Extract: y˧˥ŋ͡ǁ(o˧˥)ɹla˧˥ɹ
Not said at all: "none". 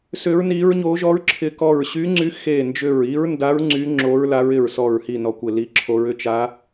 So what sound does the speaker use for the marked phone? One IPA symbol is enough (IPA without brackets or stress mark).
o˧˥